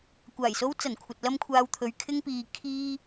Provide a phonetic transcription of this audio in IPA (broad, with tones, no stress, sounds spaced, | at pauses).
kʷ aː˨˩ j s o˧ w t͡s ɐ˨˩ n kʷʰ ɐ˨ t̚ l ɐ˥ m kʷʰ aː˧ w t̪ʰ ɵ˨˧ ɥ kʰ ɪ˧ ŋ p iː˨ kʰ iː˧